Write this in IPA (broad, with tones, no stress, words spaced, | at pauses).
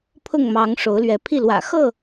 pʰʊ˥˨ŋmɑ˨˦ŋ ʂo˨˦ʊ̯lɥɛ˨˦pʰi˥˨ lwä̰˨˩xɤ˥˨